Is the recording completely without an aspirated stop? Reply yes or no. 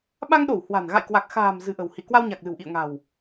yes